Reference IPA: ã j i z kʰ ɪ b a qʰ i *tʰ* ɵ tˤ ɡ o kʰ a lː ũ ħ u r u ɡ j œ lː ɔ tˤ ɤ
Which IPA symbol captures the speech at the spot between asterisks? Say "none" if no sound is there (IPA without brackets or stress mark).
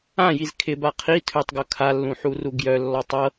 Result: tʰ